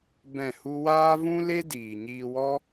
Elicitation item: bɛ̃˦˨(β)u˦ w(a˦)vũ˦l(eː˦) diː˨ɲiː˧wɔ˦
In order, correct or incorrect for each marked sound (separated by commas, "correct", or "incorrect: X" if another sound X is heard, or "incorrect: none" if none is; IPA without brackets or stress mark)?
incorrect: h, incorrect: aː˦, incorrect: e˦